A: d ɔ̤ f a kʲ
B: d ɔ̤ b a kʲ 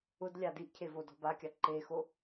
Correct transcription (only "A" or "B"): B